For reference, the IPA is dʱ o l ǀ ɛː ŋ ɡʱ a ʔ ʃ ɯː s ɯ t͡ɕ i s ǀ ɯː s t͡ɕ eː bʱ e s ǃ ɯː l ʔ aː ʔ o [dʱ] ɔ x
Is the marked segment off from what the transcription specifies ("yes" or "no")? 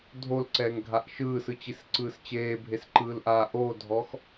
no